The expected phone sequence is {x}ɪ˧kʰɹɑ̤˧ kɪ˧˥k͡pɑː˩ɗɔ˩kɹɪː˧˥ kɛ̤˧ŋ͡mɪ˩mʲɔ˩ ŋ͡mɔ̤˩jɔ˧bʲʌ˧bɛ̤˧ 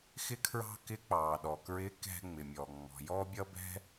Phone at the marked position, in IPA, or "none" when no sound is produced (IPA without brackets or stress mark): x